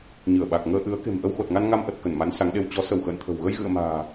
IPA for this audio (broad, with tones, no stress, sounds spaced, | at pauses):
ɲ ɨ˧˩ ə̯ ɓ a˨˩ k̚ ŋ əː˧ ʔ ɨ˨˦ ə̯ k e̤˨˩ m ʔ ə˧ w x o˨˩ t̚ ŋ a˧ n ŋ a˧ m ʔ ə˨˩ t̚ k ə˧˩ n m a˨˦ n s a˨˦ ŋ ɗ e˧ w t͡ɕ ɔ˨˦ s ə˧˩ w x ə̰ː˧˨ n t̪ʰ ə̤˨˩ w ɣ ə˧ j ɣ ɨ̰˧˨ ə̯ m a̤ː˨˩